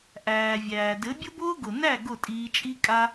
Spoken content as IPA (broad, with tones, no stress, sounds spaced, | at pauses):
ʔ æː˨ vʲ æː˨ d ɘ˨˦ bʲ ʊ˦ b ʊː˦ ɡ ʊ˨ n æ˦˨ ɡ ʊ˦˨ tʼ iː˧ t͡ʃʼ i˦ kʼ a˦